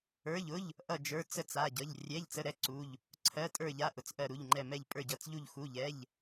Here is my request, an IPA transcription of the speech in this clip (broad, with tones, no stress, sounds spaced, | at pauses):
ə˞˧˥˧ ʎ ʊ˧˥˧ ʎ | ʔ ʌ˥˧ d͡ʒ ə˞˧˥˧ t͡s ə˥˧ t͡s a˧˥˧ ɟ ʌ˧˥˧ ʎ rʲ ɛ˧˥˧ ʎ t͡s ə˧˥˧ ɾ ɛ˥˧ ǀ u˧˥˧ ʎ | ǀʰ ɜ˧˥˧ tʼ ə˞˥˧ ʎ a˧˥˧ ʔ ʊ˧˥˧ t͡s ʔ ɜ˥˧ ɾ u˧˥˧ ʎ ŋ͡ǃ ɛ˥˧ m ɛ˥˧ ʎ pʼ ə˞˥˧ ɟ ʌ˧˥˧ t͡s ʎ u˥˧ ʎ x u˧˥˧ ʎ ɛ˧˥˧ ʎ